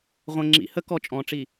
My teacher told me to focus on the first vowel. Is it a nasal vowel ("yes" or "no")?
yes